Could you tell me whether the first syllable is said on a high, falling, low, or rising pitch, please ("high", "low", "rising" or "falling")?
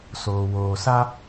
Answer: low